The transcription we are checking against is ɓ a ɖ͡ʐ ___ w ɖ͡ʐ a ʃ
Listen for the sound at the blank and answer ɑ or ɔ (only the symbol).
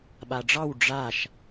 ɑ